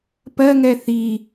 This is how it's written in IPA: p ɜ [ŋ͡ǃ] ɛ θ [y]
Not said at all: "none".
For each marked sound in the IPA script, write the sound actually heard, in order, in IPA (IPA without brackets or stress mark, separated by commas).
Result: ŋ, i